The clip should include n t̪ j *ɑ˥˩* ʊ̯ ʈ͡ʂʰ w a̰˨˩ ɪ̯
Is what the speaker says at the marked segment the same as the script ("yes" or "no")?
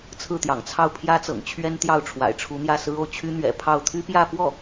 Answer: yes